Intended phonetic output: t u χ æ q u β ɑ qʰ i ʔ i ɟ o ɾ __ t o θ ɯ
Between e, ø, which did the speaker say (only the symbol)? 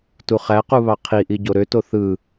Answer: ø